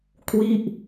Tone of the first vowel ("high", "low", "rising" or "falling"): falling